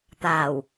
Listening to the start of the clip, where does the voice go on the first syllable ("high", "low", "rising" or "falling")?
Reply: low